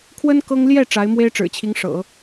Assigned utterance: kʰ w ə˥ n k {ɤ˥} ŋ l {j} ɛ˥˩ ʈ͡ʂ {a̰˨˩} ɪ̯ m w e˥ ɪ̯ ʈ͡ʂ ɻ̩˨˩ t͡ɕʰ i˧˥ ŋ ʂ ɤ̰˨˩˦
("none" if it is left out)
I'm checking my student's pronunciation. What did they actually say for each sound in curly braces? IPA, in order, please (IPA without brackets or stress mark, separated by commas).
ɤ˥, j, a˧˥